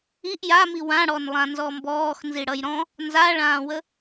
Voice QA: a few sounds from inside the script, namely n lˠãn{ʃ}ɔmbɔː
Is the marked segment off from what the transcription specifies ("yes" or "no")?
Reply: yes